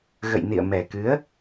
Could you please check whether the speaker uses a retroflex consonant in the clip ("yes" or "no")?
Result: no